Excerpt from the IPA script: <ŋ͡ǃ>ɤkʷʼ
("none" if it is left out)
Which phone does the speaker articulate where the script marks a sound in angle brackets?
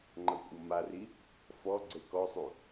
ŋ͡ǃ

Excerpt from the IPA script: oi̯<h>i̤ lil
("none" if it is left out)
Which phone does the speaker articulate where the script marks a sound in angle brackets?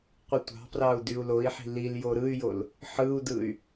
ħ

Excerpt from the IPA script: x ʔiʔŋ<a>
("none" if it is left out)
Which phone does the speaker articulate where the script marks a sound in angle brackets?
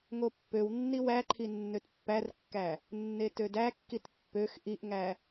æ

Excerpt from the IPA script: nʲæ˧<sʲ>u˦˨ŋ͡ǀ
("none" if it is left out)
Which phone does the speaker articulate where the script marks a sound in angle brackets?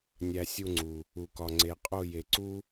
sʲ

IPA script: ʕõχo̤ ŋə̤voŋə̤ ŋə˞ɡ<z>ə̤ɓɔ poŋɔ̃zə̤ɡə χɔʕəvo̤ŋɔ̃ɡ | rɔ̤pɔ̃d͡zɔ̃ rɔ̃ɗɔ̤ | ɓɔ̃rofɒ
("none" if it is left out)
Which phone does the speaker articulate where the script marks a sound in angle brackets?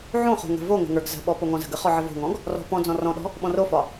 z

